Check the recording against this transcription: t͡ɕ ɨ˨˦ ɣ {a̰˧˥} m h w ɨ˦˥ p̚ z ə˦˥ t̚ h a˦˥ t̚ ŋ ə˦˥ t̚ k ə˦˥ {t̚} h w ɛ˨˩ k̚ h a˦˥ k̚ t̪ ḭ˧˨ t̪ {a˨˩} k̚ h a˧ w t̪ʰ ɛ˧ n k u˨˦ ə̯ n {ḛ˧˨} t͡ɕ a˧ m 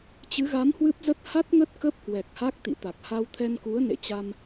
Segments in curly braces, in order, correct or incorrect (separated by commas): incorrect, incorrect, correct, correct